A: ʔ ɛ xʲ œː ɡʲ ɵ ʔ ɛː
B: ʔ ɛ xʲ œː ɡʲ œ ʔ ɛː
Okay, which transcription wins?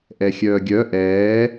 B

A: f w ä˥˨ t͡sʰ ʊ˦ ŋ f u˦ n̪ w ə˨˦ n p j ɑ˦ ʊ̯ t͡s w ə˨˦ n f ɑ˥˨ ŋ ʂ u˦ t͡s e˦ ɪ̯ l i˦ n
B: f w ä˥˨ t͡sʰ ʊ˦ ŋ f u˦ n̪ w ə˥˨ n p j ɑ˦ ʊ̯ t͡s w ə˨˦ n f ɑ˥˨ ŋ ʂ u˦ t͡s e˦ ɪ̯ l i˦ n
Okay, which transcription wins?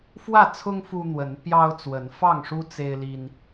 A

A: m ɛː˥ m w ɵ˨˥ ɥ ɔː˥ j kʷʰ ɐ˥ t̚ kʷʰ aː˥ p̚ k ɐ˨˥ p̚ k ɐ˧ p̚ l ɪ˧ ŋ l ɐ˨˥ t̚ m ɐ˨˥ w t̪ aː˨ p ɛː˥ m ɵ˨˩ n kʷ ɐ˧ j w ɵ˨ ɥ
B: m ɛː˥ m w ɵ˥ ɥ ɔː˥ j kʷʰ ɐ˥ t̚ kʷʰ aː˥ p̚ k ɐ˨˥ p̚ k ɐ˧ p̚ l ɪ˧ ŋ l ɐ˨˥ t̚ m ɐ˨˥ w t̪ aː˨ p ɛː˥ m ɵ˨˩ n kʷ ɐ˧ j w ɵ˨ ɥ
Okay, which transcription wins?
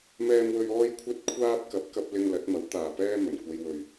B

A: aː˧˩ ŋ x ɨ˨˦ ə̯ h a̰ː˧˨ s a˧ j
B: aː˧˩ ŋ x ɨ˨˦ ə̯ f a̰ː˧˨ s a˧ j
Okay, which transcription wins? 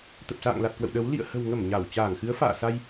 B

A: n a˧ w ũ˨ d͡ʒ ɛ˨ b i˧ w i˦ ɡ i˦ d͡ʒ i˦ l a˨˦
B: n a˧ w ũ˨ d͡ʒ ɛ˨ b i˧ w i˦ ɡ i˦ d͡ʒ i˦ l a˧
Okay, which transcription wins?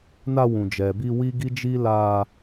B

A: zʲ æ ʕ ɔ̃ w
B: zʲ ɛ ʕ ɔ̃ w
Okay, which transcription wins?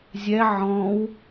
B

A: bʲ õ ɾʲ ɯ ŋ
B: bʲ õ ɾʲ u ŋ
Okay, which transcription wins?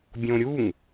B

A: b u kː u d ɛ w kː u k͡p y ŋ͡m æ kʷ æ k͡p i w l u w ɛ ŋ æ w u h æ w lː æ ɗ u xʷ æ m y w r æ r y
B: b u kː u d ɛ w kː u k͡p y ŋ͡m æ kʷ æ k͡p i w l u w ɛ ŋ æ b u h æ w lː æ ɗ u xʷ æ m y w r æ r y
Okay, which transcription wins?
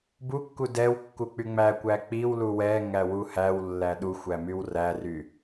A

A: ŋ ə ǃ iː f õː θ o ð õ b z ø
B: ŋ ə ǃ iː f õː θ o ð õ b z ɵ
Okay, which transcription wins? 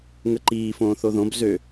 A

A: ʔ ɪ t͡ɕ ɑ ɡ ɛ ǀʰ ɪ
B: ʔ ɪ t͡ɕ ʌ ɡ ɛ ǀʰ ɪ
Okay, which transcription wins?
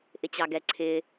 A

